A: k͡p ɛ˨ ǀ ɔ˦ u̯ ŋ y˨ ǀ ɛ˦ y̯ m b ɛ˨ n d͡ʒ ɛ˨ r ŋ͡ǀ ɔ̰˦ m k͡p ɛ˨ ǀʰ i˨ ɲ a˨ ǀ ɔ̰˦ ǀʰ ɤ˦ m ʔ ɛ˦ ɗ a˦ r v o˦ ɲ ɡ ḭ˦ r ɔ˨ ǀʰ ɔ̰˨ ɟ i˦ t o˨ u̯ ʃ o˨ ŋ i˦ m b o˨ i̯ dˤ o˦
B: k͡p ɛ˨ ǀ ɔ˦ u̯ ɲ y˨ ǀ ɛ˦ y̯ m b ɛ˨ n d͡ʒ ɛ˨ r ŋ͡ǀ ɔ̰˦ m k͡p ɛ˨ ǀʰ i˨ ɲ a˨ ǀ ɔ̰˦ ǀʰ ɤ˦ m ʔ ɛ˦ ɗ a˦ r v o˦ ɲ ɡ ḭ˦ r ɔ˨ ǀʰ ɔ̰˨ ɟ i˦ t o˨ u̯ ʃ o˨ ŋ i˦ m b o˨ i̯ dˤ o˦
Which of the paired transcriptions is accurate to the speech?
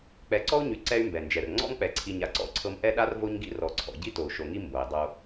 B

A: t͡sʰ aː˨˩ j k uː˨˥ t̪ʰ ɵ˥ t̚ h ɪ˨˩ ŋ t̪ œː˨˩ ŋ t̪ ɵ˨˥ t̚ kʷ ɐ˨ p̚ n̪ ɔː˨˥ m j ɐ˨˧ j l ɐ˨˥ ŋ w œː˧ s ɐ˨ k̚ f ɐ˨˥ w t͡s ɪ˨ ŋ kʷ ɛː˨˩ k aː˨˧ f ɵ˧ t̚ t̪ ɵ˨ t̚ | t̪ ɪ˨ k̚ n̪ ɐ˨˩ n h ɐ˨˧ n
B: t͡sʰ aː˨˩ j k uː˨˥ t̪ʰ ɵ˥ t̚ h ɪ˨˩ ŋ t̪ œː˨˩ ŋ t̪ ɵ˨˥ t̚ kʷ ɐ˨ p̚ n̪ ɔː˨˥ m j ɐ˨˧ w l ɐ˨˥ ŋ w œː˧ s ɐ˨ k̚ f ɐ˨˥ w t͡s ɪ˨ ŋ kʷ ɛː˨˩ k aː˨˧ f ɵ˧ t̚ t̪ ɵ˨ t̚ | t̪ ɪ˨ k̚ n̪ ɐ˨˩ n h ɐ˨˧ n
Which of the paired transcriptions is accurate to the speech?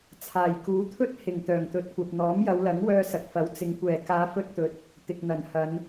B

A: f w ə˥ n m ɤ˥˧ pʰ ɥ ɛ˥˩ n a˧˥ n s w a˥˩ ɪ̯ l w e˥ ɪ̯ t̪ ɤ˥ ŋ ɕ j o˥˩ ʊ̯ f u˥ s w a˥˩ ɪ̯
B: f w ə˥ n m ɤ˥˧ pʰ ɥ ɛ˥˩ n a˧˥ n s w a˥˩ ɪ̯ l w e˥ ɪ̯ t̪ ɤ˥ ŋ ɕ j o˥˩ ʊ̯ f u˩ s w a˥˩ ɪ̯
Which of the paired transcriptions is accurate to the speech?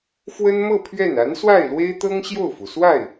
B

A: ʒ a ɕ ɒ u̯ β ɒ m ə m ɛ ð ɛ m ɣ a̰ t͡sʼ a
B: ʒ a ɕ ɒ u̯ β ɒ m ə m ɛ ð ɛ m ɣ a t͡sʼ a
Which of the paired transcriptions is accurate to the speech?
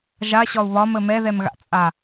A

